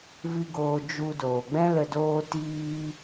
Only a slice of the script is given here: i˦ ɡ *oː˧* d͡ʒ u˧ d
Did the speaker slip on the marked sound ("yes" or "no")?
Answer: no